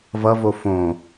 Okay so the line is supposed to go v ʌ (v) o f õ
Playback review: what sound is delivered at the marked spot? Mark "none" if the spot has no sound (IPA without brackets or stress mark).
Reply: v